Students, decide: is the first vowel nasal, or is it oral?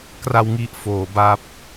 oral